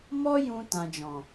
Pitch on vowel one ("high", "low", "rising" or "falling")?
high